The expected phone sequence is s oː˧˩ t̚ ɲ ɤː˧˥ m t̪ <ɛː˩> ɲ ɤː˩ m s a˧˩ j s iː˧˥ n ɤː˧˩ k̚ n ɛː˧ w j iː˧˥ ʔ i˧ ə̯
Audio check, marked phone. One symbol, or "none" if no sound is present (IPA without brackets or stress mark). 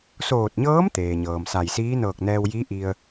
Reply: eː˩